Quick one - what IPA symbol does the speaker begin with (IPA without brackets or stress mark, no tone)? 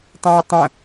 tˤ